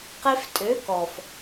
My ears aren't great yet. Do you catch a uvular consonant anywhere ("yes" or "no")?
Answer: yes